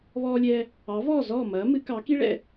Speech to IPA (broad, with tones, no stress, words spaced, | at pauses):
βɔː˧lʲɛː˧ | ɑ˩˥vɔː˥˩zɔː˥˩ mɐː˩˥ mɨ˩˥kɑ˩˥ki˥ ɭɛ̰˥˩